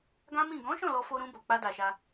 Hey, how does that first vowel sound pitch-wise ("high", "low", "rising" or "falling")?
high